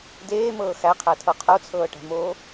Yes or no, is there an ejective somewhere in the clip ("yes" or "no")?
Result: no